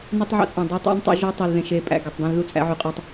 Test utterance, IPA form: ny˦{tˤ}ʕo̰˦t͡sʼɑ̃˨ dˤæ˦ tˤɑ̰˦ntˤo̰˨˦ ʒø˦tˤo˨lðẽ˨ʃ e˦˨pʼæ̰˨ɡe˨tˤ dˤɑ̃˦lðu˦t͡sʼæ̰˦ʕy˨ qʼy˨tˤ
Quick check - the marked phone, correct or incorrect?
correct